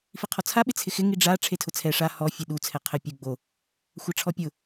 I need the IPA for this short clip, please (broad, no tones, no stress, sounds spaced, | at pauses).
f i qʰ ɔ t͡sʰ a ɓ ɪ t͡sʰ ɪ x ɪ ŋ i ɖ͡ʐ a ʈ͡ʂʰ e tʰ ʊ t͡sʰ ɛ ʂ a h ɔ fʲ e ɗ u t͡sʰ ɛ qʰ ɪ pʲ u ɡ͡b o | xʷ a ʈ͡ʂʰ ɔ pʲ ʊ